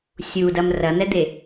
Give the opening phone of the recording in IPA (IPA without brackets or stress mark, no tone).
sʲ